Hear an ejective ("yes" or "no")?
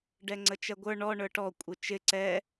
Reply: yes